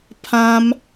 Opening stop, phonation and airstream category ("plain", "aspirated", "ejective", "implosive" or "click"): aspirated